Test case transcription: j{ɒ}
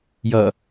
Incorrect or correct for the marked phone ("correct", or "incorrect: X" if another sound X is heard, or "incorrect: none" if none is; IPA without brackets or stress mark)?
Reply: incorrect: ʌ